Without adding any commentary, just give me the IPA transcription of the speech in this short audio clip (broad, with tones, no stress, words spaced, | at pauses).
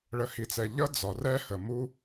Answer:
ɭə˨hi˨t͡sɛ˨ ʎʌ˦d͡zɒ˨ rɛ˦hə˨ mu˦